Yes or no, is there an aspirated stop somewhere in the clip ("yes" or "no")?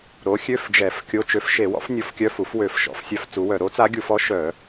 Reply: no